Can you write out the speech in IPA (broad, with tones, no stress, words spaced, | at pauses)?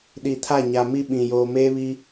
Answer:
ɗi˨tʰa˦˨ɲa˨mi˦ ɓĩ˨ joː˨meː˦βi˦